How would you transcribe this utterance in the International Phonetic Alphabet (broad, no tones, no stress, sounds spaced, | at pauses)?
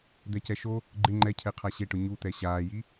d̪ ɛ c ɛ ʃ o | ɡ͡ǃ ɪ ŋ͡ǃ ɛ cʰ ɛ qʰ a ɕ e ʈ ʊ ɲ u t̪ ɛ ɕ aː j i